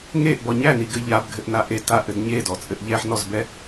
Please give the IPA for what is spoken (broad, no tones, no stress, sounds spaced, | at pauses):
ŋ e ʔ b ɔ ɲ æ n i ɡ ɘ ʎ a b ɡʱ ɘ ʔ n a ʔ e t a ʔ ɘ d ɲ e d ɔ t͡sʼ ɘ ʔ ʎ ɛ ħ n ɔ z b ɛ